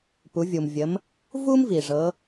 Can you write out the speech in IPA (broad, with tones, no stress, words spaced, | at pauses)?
pu˩˧vʲu˩mvʲə˩˧m | vu˥mvi˩ ʐɤ˩˧